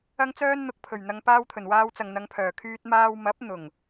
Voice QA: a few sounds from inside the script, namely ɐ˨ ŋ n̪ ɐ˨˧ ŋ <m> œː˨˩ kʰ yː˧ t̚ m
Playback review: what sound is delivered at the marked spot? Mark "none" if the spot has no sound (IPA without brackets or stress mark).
pʰ